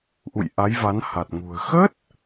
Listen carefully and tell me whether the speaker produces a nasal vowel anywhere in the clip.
no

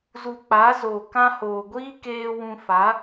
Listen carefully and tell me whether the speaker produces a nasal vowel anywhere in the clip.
yes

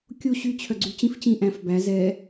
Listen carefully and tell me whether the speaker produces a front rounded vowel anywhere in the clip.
yes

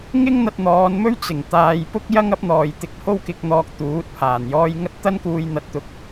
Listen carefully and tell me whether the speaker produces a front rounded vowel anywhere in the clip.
no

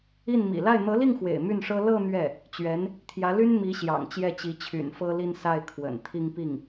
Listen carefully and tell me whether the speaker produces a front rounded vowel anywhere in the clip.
yes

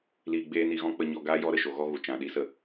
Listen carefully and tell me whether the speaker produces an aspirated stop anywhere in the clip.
no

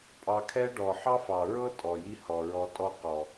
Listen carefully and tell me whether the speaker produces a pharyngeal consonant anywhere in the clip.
yes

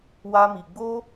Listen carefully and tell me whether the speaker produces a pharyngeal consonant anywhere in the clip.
no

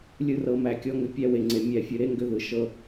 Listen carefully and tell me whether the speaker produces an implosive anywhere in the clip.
no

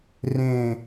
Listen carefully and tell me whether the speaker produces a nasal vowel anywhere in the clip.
yes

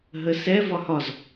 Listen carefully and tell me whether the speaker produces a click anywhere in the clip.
no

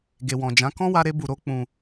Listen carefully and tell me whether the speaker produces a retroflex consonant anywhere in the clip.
no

